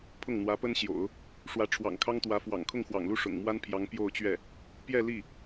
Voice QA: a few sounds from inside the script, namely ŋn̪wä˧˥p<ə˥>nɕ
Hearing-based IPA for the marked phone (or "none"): ə˥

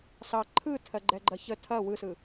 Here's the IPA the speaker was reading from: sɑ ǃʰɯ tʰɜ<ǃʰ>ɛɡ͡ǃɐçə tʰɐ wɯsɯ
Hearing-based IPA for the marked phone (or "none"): ɡ͡ǃ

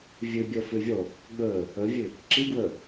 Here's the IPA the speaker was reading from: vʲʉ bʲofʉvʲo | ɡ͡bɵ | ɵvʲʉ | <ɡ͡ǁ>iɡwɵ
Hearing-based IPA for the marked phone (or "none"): ǁ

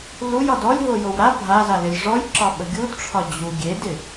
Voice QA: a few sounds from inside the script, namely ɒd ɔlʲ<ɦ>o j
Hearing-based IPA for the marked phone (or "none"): ɦ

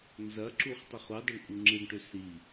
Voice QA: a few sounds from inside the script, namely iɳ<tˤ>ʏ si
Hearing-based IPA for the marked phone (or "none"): ʈ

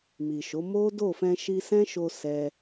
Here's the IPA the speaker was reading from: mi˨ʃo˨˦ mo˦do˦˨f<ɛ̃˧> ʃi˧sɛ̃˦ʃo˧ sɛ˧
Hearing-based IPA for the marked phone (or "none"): ɛ̃˧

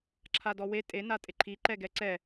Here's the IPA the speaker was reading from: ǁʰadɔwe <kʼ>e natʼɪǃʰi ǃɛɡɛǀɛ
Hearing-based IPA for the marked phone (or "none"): tʼ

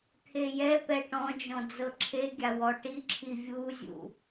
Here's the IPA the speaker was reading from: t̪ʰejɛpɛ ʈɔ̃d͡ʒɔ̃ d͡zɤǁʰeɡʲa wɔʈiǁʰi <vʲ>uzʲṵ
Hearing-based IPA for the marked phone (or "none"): vʲ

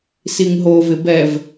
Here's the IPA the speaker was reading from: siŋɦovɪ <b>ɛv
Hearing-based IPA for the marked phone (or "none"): b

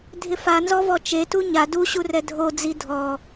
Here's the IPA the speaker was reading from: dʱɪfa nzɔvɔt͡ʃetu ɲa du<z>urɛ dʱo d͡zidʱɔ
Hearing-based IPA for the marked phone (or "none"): ɕ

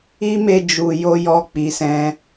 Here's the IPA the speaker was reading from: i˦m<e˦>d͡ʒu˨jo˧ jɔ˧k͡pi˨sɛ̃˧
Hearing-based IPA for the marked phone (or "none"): e˧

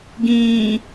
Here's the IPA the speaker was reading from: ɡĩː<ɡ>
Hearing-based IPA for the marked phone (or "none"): none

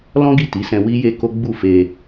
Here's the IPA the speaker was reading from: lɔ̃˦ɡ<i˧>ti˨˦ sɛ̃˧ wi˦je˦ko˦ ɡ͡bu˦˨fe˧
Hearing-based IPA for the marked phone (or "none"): i˦˨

